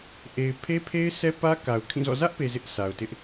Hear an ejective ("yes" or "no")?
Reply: no